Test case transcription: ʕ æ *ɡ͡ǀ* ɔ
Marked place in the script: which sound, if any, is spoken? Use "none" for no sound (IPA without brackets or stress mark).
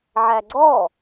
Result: ɡ͡ǀ